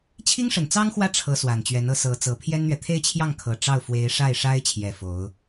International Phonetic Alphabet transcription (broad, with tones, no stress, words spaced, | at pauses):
t͡ɕʰi˥ŋʂə˨˩nt͡sɑ˥ŋxwä˥˩ ʈ͡ʂʰɤ˧˥ swa˨˩nt͡ɕɥɛ˧˥nɤ˧˥ sɤ˧˥t͡sɤ˧˥ pʰjɛ˥nn̪ɥɛ˨ t̪ʰe˥˧ɪ̯t͡ɕʰjɑ˥˩ŋkʰɤ˨˩ ʈ͡ʂɑ˥˩ʊ̯ fwe˧˥ɪ̯ʂa˥˩ɪ̯ʂa˥ɪ̯t͡ɕʰjɛ˨˩ fo˧˥ʊ̯